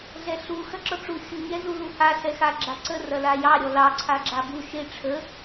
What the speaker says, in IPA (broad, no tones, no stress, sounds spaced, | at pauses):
ɮ ɛ ɬ u x ɐ ǁ ɔ ʈ͡ʂ u xʲ u ɲ ɛ z u l u h a ɬ ɛ x a ɡ͡ǁ a ǀ ə r ɐ l a j ɑ ɾʲ ɔ l ɑ ǀʰ a ɡ͡ǁ a b u ʃ e ʈ͡ʂʰ ə